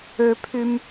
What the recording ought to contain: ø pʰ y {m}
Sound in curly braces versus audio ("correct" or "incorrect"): correct